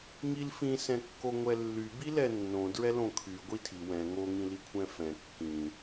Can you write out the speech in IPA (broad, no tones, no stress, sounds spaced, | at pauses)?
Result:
ŋ i l f ĩ s ɛ̃ kː o ŋʷ ɛ lː y b i l ɛ nː õ d ɹ ɛ l õ kʰ y ɡʷ i tʰ i w ɛ̃ ŋ o ŋ ĩ l i kʷʰ ɛ̃ f ɛ̃ kː ĩ